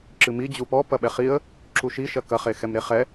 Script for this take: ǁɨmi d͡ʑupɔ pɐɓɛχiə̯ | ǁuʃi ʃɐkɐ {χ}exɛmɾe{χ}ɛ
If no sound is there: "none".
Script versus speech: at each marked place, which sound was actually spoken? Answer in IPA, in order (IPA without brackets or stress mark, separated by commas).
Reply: χ, χ